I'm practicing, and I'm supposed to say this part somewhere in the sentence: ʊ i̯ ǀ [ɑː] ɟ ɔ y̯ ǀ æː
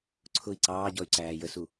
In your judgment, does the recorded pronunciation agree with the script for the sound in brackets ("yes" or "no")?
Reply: yes